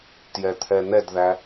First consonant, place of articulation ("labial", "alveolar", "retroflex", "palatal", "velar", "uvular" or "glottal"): alveolar